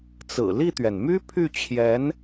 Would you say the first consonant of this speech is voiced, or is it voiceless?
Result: voiceless